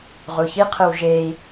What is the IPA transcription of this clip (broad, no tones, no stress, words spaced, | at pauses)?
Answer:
ʁuçiqʰɯw ʒei̯